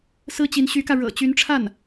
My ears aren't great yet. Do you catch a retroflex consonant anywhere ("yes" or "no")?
yes